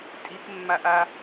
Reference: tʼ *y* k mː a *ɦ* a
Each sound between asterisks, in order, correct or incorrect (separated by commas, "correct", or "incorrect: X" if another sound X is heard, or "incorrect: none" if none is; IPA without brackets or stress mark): incorrect: i, incorrect: ʔ